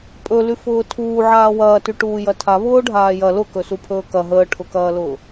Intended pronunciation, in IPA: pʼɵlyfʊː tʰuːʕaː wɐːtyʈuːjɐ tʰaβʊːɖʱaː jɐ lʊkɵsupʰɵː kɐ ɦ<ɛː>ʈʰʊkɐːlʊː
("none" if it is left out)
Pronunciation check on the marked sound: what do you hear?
əː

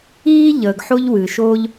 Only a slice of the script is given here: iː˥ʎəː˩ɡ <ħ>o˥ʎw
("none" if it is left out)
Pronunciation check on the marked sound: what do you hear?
ħ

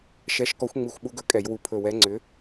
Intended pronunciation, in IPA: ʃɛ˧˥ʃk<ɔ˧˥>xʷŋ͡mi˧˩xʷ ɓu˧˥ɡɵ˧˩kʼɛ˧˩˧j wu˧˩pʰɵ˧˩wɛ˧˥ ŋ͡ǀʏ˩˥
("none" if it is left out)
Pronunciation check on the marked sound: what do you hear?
ɔ˧˥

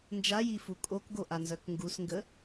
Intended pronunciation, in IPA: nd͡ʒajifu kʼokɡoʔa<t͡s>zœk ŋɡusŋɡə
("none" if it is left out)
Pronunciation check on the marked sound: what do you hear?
n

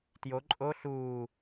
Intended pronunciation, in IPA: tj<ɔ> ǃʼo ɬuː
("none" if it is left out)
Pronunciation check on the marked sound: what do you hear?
o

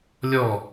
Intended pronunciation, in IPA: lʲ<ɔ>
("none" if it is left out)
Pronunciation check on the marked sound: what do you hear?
ɔ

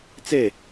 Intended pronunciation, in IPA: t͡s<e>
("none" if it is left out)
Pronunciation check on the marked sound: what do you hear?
e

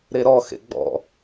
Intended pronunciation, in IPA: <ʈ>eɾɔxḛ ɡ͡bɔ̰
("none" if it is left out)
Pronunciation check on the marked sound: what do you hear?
ɾ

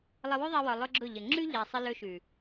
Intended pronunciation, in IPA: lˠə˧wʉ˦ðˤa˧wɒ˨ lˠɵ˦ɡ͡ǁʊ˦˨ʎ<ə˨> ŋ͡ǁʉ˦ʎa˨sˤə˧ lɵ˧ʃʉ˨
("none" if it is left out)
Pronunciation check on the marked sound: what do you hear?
ə˨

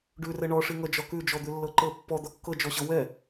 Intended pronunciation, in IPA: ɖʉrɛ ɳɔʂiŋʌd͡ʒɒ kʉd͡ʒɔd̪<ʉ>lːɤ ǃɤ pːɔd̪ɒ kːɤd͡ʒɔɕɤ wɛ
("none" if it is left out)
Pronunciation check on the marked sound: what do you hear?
ʉ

